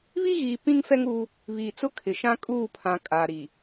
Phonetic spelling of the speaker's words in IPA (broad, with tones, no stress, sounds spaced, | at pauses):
β i˦ ɣ iː˨ p ĩ˦ ŋ f ɛ˦ ŋ uː˦ | β iː˨ t͡s ʊ˦ kʰ ɪ˨ ʃ ã˦ kʼ uː˦˨ pʰ ã˨ kʼ a˨ ɾ i˨